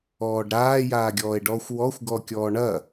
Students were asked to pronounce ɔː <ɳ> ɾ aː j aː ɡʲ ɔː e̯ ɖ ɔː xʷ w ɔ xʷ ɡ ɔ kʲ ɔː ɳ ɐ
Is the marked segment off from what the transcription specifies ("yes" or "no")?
yes